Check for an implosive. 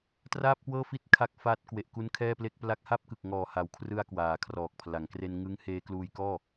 absent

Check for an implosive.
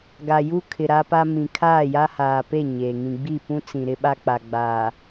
present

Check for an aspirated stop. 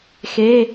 absent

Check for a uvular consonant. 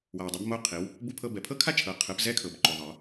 present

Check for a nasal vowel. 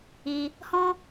present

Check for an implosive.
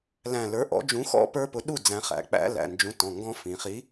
present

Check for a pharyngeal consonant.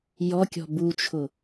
absent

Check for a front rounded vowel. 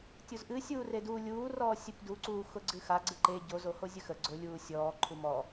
absent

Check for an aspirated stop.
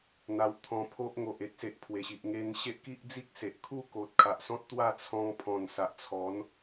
present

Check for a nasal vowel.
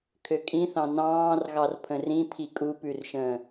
present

